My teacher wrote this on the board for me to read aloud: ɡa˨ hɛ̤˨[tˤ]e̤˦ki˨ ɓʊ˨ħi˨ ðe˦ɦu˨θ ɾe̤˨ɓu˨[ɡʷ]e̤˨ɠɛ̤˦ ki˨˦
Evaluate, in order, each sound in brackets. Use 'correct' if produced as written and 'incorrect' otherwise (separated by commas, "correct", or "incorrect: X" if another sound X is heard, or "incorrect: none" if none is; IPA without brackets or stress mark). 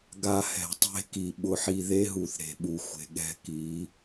correct, incorrect: xʷ